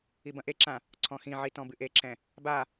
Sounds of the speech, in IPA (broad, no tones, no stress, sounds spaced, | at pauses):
i b ɐ̃ ʔ e ǁ ã | ǀʰ ɔ̃ x ĩ ʕ i t ɔ̃ b ɨ ʔ e ǁ ɛ̃ | b a